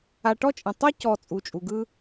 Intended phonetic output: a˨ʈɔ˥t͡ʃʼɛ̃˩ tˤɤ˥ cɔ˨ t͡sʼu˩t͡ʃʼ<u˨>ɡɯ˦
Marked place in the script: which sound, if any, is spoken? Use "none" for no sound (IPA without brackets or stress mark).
u˩